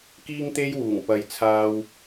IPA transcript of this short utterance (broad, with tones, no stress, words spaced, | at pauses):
kiː˥ŋt̪e˥jwuː˨˩ŋpɐ˨˧j t͡sʰaː˧w